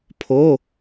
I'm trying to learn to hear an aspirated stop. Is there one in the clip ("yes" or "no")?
yes